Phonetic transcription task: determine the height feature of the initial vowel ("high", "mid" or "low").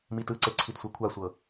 high